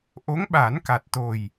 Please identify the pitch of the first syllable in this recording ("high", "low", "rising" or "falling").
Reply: rising